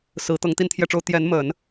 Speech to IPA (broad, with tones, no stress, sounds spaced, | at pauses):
s ɹ̩˧˥ t̪ ɤ˧˥ ŋ t̪ i˥ n t̪ʰ j ɛ˥˩ ʈ͡ʂ o˥ ʊ̯ t̪ j ɛ˧˥ n m ə˨˩˦ n